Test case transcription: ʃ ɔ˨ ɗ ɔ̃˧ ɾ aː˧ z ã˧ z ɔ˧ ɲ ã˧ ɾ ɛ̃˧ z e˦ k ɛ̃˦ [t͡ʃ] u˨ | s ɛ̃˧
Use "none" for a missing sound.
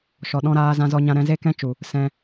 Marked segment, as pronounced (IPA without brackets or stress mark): t͡ʃ